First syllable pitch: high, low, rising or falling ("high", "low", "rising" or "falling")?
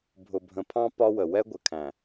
low